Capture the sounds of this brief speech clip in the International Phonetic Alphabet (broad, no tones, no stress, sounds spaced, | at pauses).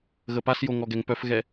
ɣ ə p a s j o ŋ ɔ ɡ ɛ ŋ p œ f ɣ ɛ